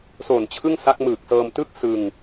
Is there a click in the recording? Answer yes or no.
no